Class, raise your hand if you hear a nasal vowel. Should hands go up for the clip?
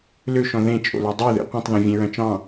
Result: yes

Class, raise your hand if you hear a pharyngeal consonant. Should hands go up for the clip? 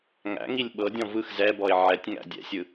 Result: yes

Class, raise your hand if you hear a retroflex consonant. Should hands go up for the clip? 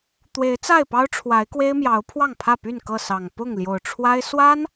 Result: yes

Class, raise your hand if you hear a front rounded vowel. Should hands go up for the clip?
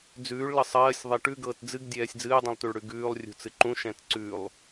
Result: no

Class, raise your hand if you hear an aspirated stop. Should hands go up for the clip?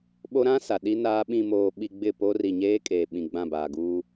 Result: no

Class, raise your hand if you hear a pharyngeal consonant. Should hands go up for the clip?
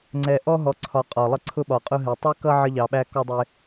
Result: yes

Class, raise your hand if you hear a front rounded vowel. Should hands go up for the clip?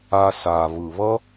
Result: no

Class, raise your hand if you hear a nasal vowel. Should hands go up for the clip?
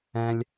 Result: yes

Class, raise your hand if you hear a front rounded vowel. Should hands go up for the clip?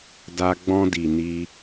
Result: no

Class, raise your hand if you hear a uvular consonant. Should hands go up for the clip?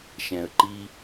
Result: no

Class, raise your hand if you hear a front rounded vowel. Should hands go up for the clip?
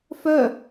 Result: yes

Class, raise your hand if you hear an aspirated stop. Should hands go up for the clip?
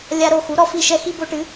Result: no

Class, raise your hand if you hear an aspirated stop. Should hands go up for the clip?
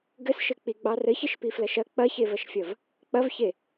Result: no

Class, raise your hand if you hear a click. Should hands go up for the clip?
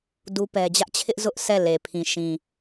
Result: no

